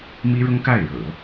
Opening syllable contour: high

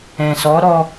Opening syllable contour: low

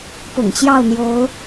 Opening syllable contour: low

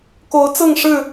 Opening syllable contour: rising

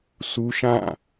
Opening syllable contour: high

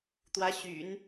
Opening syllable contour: rising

